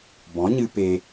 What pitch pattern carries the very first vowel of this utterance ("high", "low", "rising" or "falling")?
rising